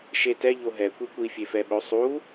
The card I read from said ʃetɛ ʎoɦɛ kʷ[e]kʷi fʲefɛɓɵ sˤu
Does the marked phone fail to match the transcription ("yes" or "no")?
yes